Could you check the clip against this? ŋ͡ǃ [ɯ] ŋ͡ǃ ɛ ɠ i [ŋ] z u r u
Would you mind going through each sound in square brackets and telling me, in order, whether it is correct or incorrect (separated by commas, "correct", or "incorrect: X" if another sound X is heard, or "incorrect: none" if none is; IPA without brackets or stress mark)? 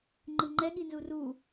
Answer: correct, incorrect: n